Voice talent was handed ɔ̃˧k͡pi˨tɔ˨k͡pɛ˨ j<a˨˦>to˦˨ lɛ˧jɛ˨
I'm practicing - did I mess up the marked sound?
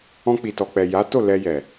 no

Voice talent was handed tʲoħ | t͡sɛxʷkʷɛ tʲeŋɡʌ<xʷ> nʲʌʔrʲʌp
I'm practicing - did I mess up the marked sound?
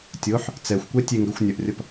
no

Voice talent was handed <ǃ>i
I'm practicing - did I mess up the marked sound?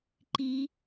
no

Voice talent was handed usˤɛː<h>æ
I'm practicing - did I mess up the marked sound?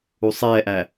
yes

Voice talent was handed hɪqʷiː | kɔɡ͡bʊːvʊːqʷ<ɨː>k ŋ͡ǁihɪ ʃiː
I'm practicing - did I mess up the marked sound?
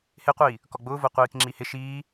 yes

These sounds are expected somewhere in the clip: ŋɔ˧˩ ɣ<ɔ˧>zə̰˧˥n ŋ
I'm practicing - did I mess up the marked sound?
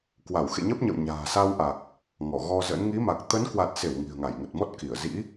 no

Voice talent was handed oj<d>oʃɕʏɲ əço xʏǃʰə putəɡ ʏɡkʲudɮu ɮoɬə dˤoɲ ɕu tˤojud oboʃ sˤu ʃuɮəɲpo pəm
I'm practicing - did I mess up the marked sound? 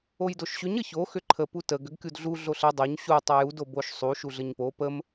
no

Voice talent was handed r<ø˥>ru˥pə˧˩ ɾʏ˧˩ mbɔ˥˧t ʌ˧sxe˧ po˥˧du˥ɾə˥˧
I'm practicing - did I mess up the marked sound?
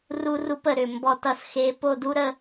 yes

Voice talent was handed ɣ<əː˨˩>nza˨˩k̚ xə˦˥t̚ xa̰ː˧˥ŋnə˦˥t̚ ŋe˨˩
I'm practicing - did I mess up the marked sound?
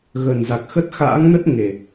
yes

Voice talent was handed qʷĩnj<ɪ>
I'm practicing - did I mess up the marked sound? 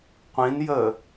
yes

